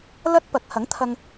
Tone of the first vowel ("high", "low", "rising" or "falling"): high